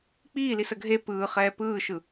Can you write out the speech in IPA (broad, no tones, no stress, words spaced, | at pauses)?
k͡piːlis əɡʱe pɯː χɛːpɯːʃɯ